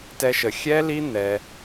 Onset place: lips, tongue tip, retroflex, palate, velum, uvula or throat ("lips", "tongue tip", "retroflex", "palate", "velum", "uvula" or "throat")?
tongue tip